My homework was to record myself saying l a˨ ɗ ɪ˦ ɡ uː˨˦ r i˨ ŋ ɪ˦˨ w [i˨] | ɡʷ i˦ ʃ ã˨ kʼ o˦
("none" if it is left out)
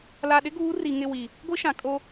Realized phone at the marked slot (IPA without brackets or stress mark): i˨